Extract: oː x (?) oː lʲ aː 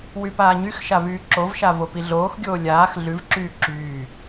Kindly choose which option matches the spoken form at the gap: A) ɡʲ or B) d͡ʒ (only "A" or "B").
A